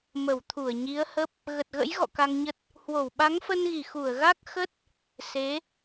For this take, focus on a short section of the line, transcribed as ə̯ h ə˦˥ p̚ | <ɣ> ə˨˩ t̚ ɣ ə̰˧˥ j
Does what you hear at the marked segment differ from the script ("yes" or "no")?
no